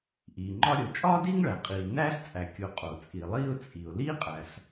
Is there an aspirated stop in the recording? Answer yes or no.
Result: no